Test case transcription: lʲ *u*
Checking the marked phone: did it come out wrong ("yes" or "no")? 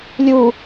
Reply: no